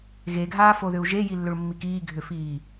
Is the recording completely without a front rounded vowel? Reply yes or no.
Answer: no